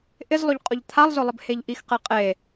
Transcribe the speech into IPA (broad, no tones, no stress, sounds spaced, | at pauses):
ʔ ɪ z lˠ ʊ ʎ qʼ ʊ ʎ t̪ʰ a lˠ z ʊ lˠ ɪ b h e ʎ ʔ i x q e qʼ e